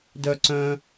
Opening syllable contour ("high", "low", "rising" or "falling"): high